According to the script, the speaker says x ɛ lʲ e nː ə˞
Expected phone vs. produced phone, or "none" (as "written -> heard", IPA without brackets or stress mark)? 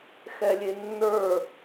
none